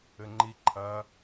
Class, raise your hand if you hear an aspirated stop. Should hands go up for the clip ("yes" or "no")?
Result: yes